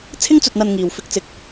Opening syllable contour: high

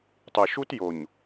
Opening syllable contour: low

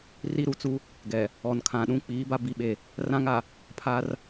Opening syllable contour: high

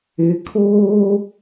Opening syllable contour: rising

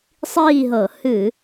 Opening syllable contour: falling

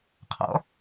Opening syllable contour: rising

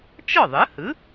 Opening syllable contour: falling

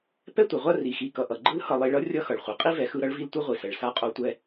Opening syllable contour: high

